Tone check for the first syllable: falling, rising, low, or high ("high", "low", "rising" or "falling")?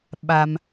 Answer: low